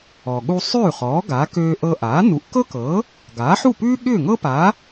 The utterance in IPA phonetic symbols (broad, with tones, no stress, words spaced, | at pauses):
ɔ˩ɠu˧sˤʉː˥˩χɔː˩˥ ɡa˩˥ køː˧ʔɤ˧ʔaː˩˥ nu˩˥ʔkɤ˥kɤ˩˥ | ɡaː˩˥ħu˥˩pʉː˥ ɠʏː˥˩ŋɤ˥pa˩˥